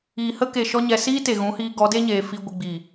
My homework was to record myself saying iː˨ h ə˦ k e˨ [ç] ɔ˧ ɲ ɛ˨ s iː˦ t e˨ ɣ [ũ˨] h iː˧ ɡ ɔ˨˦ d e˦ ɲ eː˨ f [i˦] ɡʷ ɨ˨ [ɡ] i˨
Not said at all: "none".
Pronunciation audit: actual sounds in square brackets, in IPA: ʃ, ũ˨˦, i˧, ɡ͡b

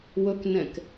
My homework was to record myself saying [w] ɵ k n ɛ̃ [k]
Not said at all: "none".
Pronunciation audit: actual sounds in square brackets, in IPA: w, k

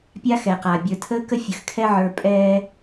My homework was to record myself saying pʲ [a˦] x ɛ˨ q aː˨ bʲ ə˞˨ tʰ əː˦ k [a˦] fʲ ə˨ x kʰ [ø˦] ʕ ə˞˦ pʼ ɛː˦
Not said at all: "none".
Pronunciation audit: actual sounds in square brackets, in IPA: a˦, ə˦, ɛ˦

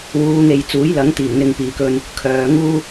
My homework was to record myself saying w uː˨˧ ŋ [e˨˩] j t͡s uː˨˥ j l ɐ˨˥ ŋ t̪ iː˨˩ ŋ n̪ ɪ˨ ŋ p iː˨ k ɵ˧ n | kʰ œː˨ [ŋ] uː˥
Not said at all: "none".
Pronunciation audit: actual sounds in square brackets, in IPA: e˨, ŋ

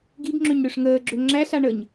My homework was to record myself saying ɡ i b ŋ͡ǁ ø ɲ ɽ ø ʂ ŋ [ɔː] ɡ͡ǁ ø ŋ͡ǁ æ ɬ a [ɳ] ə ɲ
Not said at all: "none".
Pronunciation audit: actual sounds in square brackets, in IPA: əː, ɳ

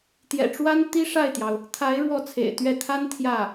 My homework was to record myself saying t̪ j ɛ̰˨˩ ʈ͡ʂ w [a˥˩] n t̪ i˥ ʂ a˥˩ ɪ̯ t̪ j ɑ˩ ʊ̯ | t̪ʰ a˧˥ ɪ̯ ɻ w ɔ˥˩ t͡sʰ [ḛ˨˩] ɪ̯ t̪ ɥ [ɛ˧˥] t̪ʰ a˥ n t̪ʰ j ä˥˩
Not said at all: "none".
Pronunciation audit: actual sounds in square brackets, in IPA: a˥, ḛ˨˩, ɛ˥˩

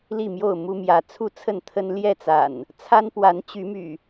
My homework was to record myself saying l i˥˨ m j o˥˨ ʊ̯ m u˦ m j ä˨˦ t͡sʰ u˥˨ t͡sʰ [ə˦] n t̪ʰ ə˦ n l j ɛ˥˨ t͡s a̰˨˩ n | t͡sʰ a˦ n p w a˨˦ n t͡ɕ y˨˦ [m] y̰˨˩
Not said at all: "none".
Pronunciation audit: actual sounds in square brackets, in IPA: ə˥˨, m

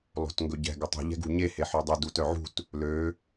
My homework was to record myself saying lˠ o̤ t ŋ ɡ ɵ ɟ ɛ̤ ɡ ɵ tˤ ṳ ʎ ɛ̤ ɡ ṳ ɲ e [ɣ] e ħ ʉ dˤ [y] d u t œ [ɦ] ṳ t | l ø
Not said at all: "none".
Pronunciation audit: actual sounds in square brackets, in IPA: h, y, ʕ

